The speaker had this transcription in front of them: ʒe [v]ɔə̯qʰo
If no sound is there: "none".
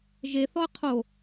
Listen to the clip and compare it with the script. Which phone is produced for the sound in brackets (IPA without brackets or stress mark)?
θ